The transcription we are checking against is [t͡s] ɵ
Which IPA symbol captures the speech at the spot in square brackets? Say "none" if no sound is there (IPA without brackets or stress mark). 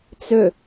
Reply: t͡s